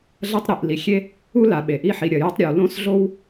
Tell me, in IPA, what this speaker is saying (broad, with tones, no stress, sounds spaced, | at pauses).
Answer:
ɮ ɐ˥ tˤ ɾ i˩ ʔ l i˩ xʲ e˥ | u˥ l a˩ ɓ e˩ ʔ i˥ ħ i˩ ɾʲ ɐ˩ j ɨ˥ tˤ ɾʲ ʉ˩ w l õ˥ s ɮ o˥ w